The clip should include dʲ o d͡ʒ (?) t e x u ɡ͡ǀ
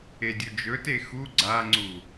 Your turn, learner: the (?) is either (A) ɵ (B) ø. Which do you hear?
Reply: A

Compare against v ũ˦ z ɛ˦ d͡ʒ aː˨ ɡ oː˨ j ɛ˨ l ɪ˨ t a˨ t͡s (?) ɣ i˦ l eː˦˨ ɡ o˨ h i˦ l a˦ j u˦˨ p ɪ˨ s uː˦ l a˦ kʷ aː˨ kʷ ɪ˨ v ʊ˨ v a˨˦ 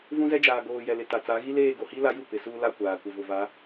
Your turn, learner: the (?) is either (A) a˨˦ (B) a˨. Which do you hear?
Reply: A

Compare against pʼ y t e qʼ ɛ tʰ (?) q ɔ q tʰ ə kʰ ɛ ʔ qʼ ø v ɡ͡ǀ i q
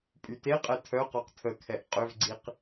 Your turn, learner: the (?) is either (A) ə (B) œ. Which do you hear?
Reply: B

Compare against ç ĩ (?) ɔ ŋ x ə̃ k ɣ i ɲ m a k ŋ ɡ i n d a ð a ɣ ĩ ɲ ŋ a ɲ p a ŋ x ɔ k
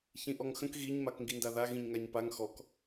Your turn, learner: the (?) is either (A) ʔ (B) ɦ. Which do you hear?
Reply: A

